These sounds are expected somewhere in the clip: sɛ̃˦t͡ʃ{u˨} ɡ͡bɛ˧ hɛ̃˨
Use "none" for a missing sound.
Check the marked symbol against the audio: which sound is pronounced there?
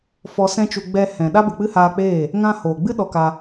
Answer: u˧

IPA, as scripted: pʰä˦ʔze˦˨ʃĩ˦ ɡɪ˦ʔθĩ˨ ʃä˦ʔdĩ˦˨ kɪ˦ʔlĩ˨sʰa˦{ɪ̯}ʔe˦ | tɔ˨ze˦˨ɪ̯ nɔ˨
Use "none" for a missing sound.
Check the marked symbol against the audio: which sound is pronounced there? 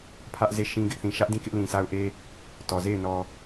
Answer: ʊ̯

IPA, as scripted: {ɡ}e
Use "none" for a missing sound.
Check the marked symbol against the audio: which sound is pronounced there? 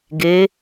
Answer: ɡ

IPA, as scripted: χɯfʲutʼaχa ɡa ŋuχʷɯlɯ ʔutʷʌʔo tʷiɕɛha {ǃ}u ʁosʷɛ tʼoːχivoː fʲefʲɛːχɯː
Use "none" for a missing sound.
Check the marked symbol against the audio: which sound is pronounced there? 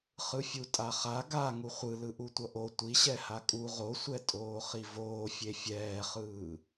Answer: kʼ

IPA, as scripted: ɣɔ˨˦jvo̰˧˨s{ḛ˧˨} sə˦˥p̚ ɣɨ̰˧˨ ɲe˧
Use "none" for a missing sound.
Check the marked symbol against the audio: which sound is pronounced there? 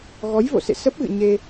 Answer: ḛ˧˨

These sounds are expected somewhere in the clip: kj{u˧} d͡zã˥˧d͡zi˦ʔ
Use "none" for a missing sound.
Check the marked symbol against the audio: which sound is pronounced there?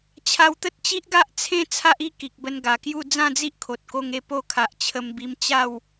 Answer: u˥˧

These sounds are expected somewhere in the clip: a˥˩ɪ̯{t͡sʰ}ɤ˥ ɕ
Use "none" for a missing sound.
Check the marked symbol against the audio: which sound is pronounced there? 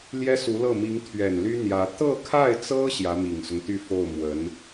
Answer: t͡s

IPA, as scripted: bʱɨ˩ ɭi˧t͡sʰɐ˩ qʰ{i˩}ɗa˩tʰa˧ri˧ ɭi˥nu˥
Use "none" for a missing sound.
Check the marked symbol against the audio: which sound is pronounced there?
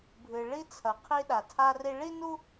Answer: i˧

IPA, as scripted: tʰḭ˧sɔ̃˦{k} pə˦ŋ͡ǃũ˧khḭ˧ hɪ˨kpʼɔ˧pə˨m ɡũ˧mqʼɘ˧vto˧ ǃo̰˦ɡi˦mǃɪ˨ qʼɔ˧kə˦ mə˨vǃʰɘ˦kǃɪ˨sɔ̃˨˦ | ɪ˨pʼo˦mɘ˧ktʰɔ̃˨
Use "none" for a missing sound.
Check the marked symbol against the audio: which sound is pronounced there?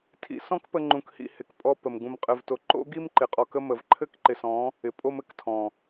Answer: k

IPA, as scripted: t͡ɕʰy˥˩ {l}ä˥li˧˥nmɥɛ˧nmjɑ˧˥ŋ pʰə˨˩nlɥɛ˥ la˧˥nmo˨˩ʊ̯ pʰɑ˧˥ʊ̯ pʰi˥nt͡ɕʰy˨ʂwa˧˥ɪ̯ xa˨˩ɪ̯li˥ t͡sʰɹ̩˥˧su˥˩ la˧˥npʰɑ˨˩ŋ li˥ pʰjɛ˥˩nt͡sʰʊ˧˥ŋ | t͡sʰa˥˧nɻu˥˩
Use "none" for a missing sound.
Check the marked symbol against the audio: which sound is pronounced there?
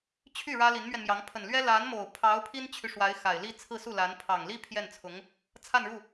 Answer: ɻ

